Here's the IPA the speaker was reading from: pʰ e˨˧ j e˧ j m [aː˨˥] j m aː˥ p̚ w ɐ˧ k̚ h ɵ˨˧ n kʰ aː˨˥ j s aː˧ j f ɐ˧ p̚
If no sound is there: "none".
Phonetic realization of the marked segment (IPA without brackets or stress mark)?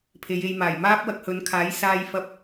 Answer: aː˨˩